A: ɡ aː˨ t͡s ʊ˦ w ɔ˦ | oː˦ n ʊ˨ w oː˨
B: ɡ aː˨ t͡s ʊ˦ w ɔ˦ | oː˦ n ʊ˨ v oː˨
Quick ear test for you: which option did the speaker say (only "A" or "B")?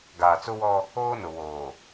A